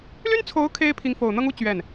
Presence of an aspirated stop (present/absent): present